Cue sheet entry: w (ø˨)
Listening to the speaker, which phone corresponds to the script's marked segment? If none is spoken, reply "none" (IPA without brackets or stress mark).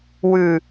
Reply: ʉ˨